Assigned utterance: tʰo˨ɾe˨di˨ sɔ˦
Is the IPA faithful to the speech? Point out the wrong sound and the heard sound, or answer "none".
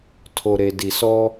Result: none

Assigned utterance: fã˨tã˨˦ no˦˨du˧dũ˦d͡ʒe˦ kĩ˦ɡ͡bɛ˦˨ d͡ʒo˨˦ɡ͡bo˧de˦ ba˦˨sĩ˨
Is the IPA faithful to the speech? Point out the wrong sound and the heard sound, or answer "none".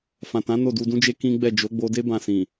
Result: a˦˨ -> ã˦˨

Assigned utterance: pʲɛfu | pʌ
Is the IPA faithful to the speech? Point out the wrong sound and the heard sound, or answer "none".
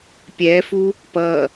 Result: none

